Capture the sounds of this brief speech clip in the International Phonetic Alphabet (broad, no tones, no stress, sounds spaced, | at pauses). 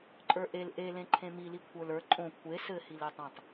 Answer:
ǃʼ ə˞ ʔ e l ʔ e l ẽ ǃʰ ẽ m i l i kʷʰ ə˞ l ə˞ ǃʼ õ kʷʰ e s ɘ h i l e tˤ ẽ tˤ